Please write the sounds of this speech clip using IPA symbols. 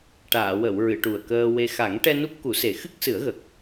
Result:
ʈ aː˨˩˨ w ə˨˩˨ w ɹ ɨ˨˩˨ ʈ u˨˩ ə̯ k əː˧ w e˧ x a˨˩˦ ŋ ʈ ɛ˧ n u˦˥ p̚ k u˨˩˦ s e˨˩˦ x ɨ˦˥ k̚ s ɨ˨˩˦ ə̯ ɣ ə˨˩ k̚

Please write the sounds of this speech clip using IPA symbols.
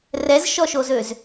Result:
r ɛ z ʃ ɔ ʃ o z ø z

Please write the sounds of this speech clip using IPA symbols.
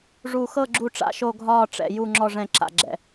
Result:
ʐ u˨˩ x ɤ˦˨ ɡ͡ǁ u˦˨ ʈ͡ʂ a̰˦˨ ʃ o˦˨ ɡʱ ɒː˦˨ ʈ͡ʂ ɛ̰˨˩ j u˦˨ ŋ͡ǁ ɔ˦˨ ʐ ɛ̃˦˨ ǁ a̰˨˩ ɡ͡ǁ ɛ̰˨˩

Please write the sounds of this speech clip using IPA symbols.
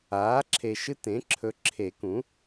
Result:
aː˩˥ ǁʰ e˨ ʃ ɨ˦ t ẽ˩˥ ǁʰ ɵ˨ ǁʰ e˨˩˦ k ũ˩˥

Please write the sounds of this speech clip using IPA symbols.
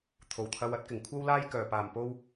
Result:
t̪ʰ o˨˩ w t̪ʰ ɐ˧ w ɐ˥ t̚ k ɪ˨˩ ŋ kʷʰ ɐ˥ w l aː˥ j k œː˨˩ p aː˨˩ m p o˧ w

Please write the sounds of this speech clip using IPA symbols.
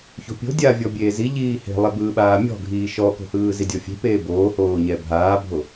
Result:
ç o̤ pʲ o̤ dʲ a vʲ ɔ bʲ eː z i ʎ iː h e̤ lˠ ɛ b ɯː ɓ aː mʲ ɔ̤ ɡʱ iː ʃ ɔ k o̤ h ɯː z i dʲ ɔ fʲ e̤ p eː b oː h oː ɲ ɛ bʱ aː bʱ o

